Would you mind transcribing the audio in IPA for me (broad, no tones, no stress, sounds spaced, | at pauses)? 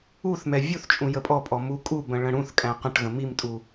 u θ m ɛ vʲ u θ t͡ʃʼ ũ j ə pʼ ɔ pʼ ɔ m u kʼ u b ə̃ ɭ ə̃ ɽ ũ θ kʼ æ̃ q ə̃ ʈ ɣ ə̃ m i m tʼ u